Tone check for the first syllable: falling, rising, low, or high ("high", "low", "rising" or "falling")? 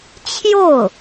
falling